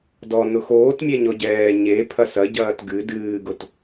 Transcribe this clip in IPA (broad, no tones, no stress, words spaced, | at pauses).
dɔ nʊxoːtmʲɛ ɲɔɟɛː ɲe pʰɐsɐ ɟɐːtɡɨ dɨːɡʊt